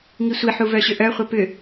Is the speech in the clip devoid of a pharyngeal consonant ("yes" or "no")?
no